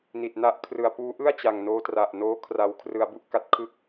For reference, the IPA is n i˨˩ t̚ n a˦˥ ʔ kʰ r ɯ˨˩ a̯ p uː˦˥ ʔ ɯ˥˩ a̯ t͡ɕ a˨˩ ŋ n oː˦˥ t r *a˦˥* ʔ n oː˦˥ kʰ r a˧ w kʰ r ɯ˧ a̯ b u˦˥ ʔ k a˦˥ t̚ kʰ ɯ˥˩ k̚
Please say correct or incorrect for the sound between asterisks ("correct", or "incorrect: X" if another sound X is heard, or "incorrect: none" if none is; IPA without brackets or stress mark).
incorrect: a˨˩